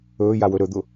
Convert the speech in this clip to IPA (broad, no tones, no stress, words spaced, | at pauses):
ɵːjawɵ ɾɵd̪ʊ